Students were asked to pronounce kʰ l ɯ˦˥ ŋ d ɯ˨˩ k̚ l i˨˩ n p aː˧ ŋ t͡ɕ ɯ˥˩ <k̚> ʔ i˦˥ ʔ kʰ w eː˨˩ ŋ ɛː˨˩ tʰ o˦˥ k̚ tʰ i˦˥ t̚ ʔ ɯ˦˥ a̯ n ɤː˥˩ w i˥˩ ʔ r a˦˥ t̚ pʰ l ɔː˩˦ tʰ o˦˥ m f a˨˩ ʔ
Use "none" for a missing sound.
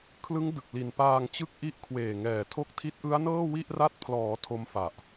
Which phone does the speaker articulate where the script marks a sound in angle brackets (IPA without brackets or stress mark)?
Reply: k̚